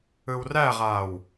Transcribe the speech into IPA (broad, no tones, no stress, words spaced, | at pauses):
ɯwræʁaːw